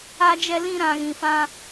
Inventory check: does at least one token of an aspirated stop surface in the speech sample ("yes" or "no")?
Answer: no